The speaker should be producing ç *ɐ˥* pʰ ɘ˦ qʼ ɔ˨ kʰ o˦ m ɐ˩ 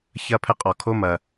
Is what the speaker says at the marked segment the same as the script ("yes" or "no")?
yes